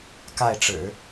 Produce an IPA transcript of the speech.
k a˥˩ ɪ̯ ʈ͡ʂ ɻ̩˨˩˦

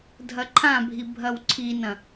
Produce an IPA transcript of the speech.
dʱ ɐ ǃʰ ã bʱ i bʱ ɐ w ǀʰ i n ɐ̃

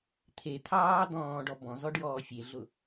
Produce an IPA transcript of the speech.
t̪ʰ e t̪ʰ ɑː d̪ ɔ̃ː ɖ ɔ b ɔ̃ z ɔ ɖ j ɔː fʲ e ɮ ʊ

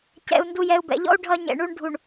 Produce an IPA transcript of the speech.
c ɛ̰˨ u̯ n d u˨ j ɛ˨ u̯ b ɛ̰˨ ʎ ɔ̰˦ u̯ ɖʱ ʌ˦ ɲ ɛ̰˨ ɳ u˦ ɳ ɖʱ u˨ ɳ

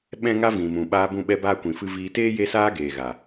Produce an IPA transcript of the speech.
ɓ ɛ̃˦ ŋ a˦ v ĩ˨ m ũ˨ ɓ aː˧ b ũ˦˨ ɓ ɛ˦ b aː˦ kʷ ĩ˨ f ɨ˧ v iː˧ t eː˦ j e˦ s aː˦ ɡ eː˨ ɣ a˨

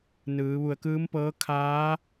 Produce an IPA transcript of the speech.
n ɯː˩˧ ʋ u˧˩ ə̯ k ɯː˧˥ m p ɤː˧˥ kʰ aː˧˥

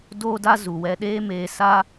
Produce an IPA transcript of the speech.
d oː˦ d a˦ z u˨ w ɛ˧ ɗ eː˦ m eː˧ s a˦

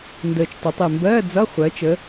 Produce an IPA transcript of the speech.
n d əː˨˩ t͡ʃ tˤ ʊ˩˧ tˤ e˨˩ m b ɜː˧˥˧ d͡z ʌ˧˥˧ χʷ ɜ˩˧ t͡ʃ ə˩˧

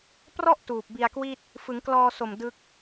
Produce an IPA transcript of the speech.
p r ɔ˥˩ ʔ t uː˨˩ p̚ b i˧ a̯ k w i˥˩ t̚ | f ɯ˩˦ ŋ k l ɔː˧ s o˨˩ m d ɯ˦˥ k̚

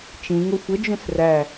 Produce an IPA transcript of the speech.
t͡ʃ ĩ ŋ o xʷ ə d͡ʒ ũ s r æ

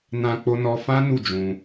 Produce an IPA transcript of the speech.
n ã˧ k͡p o˦ n ɔ˦ f ã˦ n u˦˨ d͡ʒ ũ˧

